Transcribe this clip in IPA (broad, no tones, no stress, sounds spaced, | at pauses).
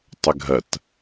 tˤ ʏ ɡʱ ɐ t